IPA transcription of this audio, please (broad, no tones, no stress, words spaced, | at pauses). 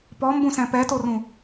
pɔmbũsɛ̃ pɛtorũ